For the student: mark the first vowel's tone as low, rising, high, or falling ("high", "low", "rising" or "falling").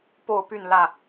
falling